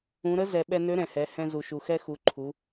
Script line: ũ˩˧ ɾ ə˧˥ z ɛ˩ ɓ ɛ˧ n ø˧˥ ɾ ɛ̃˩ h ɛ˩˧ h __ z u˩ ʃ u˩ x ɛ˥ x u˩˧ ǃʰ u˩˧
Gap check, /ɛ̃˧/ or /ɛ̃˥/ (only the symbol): ɛ̃˧